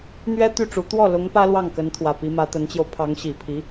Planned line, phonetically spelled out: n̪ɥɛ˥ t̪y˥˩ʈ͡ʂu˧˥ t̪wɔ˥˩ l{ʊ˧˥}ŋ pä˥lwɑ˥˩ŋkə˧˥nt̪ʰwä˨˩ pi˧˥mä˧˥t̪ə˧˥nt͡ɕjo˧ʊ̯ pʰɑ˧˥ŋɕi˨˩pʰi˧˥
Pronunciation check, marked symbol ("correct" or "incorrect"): correct